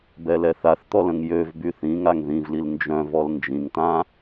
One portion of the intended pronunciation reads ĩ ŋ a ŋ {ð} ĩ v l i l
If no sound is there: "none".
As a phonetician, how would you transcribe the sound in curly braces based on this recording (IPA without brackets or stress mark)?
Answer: ð